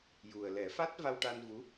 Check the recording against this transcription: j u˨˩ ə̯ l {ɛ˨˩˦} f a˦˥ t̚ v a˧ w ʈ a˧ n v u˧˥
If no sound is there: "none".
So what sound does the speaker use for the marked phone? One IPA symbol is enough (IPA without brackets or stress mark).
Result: ɛ˨˩˦